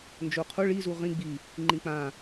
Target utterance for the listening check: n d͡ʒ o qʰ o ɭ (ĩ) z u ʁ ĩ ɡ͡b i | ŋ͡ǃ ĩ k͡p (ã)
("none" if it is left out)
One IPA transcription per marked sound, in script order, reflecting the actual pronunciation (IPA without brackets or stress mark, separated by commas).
i, ã